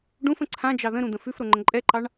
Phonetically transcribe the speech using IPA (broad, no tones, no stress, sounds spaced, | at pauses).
ɖ ũ f ə̃ ǀʰ ã d͡ʒ ɑ ð ə̃ ɾ ũ d̪ ə̃ f ʉ f ɾ o ŋ͡ǃ ə̃ ǃʼ ɛ ǃ ɑ ɳ